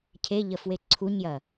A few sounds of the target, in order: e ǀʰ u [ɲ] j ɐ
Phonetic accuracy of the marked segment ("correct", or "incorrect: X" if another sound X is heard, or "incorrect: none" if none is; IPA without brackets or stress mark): correct